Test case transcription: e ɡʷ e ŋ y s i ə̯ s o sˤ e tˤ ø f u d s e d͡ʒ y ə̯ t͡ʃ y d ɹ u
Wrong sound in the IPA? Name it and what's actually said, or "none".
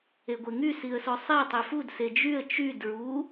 none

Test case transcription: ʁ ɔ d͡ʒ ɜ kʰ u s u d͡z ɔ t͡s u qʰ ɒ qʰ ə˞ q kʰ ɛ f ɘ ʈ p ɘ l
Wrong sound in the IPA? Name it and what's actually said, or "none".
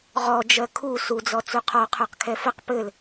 ʈ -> q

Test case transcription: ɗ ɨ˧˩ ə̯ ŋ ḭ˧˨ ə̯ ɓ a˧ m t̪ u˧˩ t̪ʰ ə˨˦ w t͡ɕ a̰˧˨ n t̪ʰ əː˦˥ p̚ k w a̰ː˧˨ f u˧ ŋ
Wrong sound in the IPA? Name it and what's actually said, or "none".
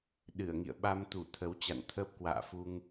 none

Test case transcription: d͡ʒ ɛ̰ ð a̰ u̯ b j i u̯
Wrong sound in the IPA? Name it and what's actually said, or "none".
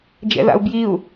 none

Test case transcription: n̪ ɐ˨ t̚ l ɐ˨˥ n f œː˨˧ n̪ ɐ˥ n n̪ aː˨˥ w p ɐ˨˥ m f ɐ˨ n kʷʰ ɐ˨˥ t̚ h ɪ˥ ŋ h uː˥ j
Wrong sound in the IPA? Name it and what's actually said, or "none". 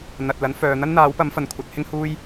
none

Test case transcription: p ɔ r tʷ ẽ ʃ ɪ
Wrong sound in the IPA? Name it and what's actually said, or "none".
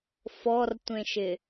p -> f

